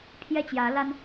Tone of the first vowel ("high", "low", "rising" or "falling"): falling